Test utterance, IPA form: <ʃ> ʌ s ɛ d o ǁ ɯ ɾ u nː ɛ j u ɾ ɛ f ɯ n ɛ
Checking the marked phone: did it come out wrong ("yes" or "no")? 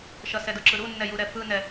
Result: no